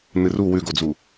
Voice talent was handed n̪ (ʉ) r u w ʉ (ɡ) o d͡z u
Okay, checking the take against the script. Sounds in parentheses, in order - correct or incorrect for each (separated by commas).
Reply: incorrect, correct